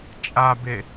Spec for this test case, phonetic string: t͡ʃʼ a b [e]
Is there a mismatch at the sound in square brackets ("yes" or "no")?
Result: no